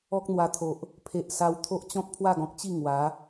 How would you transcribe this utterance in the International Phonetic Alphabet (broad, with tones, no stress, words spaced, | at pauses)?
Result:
ɔ˦k̚n̪wa˧t̪ʰo˨ʔ | pʰe˨ʔsa˧wt̪ʰo˦ʔ t͡ɕɔ̃˦k̚pʰwa˥˧ɡɔ̃˨k̚t͡ɕi˥˧ ŋwa˨˦